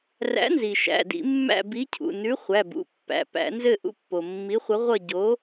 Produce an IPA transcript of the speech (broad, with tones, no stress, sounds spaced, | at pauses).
r æ̰˨˥ n z i˩ ʃ æ̰˩˧˩ d ḭ˧˩˧ mː æ̰˦˨ b i˨˥ cʰ ṵ˩˧˩ n ʉ˨˥ χʷ æ˩˧˩ b ṵ˩˧˩ pː æ̰˩˧˩ p æ̰˧˩˧ n z ɘ˦˨ ʔ ṵ˦ pː o˩ mː i˨˥ χʷ ʌ˨˥ ʁʷ ʌ˦˨ ɟ o˨˥